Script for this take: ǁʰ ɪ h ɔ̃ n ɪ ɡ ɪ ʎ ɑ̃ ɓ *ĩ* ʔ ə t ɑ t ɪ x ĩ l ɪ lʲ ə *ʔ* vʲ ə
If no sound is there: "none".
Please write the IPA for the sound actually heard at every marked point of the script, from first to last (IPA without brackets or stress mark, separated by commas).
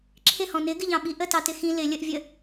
i, ʔ